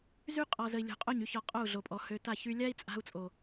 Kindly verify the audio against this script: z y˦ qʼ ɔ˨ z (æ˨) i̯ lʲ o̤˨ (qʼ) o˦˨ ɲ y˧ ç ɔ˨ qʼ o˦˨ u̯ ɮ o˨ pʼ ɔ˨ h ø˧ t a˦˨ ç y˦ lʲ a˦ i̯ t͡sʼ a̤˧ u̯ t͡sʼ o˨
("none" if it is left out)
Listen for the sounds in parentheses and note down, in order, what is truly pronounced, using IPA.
ə˨, qʼ

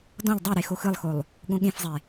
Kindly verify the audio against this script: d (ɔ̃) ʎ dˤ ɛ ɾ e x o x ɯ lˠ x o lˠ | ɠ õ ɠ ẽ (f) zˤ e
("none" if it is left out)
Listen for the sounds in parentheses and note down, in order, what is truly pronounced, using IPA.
ɔ̃, f

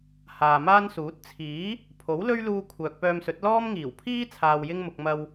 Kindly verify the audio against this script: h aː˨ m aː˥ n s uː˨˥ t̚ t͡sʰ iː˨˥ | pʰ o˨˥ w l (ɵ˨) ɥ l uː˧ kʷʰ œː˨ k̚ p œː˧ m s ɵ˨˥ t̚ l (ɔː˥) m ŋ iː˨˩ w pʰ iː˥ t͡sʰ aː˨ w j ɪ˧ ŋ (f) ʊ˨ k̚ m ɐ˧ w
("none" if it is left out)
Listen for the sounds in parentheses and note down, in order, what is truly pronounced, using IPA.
ɵ˥, ɔː˥, m

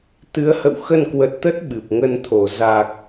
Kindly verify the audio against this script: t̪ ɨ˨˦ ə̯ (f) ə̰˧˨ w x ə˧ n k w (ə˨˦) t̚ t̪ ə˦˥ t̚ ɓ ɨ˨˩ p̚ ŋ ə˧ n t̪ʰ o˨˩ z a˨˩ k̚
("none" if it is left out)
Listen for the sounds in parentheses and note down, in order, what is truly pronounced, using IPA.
h, ə˨˩

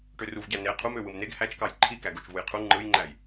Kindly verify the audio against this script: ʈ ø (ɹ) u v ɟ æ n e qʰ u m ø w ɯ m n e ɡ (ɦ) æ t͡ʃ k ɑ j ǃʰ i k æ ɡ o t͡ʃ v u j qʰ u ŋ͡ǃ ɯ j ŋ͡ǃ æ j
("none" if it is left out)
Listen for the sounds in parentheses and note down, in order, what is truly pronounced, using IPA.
r, h

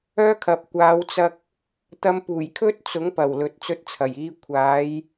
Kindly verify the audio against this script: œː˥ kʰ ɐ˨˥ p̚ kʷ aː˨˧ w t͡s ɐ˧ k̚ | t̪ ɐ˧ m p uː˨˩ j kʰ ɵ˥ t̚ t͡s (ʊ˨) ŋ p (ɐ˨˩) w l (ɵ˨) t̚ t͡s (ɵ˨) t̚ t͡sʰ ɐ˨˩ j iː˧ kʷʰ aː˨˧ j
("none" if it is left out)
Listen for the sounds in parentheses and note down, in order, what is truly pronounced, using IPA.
ʊ˨˥, ɐ˨˩, ɵ˨, ɵ˧

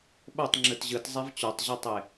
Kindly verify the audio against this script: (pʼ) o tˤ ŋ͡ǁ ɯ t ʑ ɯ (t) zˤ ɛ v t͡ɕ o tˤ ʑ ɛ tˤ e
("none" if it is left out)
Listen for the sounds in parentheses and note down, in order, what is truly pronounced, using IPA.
ɓ, t

